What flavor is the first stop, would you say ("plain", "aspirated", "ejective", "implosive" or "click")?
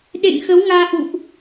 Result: implosive